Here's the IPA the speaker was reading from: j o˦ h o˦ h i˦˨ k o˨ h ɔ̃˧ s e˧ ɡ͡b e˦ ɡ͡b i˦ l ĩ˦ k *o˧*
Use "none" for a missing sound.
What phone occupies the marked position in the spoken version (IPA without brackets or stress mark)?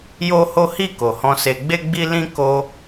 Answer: o˧